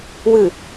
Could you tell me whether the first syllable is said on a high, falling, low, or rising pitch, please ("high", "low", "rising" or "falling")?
low